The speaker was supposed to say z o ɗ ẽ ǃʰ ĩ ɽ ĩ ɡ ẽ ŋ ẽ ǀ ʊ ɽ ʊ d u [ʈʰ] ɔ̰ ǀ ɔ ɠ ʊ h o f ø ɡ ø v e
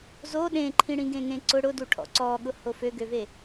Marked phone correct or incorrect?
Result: correct